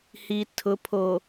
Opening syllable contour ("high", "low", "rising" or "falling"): low